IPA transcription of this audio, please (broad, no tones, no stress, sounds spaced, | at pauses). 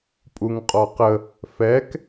pʼ u ŋ qʼ ɔ q ə | f ɛ k